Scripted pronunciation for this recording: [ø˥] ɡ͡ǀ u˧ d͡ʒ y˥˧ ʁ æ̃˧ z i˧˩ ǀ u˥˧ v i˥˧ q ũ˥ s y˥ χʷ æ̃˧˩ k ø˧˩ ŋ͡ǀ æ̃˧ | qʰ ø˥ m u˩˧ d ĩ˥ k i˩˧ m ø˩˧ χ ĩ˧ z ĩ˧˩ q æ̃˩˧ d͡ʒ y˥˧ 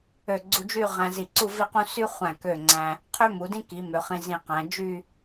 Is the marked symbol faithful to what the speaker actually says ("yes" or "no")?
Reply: no